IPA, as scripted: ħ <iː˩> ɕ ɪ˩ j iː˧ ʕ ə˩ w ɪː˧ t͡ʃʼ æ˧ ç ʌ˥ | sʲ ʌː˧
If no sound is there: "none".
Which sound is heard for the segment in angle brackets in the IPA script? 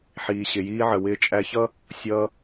iː˩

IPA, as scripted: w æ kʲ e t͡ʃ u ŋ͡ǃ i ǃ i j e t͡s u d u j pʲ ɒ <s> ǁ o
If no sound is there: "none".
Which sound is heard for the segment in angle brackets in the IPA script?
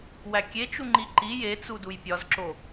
z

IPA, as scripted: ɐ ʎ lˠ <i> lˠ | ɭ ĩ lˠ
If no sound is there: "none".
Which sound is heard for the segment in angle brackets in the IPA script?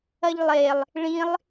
e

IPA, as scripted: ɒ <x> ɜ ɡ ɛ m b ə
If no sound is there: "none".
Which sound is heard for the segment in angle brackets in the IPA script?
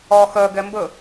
x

